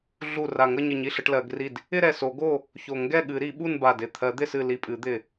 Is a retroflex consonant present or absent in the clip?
present